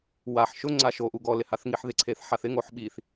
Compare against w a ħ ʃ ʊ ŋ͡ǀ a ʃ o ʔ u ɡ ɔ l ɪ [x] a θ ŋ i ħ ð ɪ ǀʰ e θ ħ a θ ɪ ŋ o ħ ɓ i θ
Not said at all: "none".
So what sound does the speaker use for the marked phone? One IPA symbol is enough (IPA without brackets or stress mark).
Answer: h